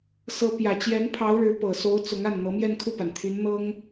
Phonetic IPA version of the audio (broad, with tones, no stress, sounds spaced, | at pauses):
s ɤ˧˥ p j ä˨˩ t͡ɕ j ɛ˧˥ n pʰ ɑ˧˥ ʊ̯ ɻ ɻ̩˧˥ p ɤ˨˩ s o˧˥ ʊ̯ t͡s ʊ˧˥ ŋ a˥˩ n n̪ ɤ˧˥ m j ɛ˥˧ n kʰ u˥˩ p a˩ n t̪ʰ y˧˥ n n̪ ɤ˥ ŋ